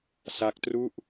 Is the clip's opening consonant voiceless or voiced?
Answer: voiceless